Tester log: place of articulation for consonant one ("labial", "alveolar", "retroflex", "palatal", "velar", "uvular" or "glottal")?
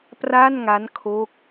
labial